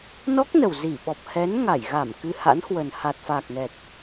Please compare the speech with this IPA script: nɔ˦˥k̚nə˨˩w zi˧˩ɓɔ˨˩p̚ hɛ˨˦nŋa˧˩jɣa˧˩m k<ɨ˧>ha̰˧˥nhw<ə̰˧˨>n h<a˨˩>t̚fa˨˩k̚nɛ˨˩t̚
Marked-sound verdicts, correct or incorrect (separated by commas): correct, incorrect, correct